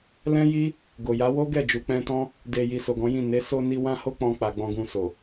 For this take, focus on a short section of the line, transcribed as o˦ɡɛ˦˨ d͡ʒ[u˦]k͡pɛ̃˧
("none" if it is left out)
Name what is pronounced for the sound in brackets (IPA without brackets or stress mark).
u˨